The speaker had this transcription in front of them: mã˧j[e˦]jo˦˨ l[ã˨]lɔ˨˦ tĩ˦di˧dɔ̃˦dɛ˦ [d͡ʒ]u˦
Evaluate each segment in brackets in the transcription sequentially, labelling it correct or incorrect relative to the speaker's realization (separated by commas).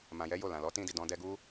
incorrect, correct, incorrect